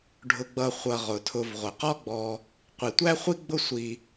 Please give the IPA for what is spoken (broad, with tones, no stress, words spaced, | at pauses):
ɖʱʊ˨ɡ͡bʌ˨ χʷʌ˨ ʁʊ˩tʰʊ˨vʁʷə˩ qɔ˥ɡ͡bɔ˨ | qʷi˩tʷæ˥χʷi˥ɡ͡bʊ˦ sʷi˨